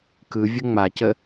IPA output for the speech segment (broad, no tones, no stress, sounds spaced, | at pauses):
k ɯ vʲ ə ŋ͡m a c ə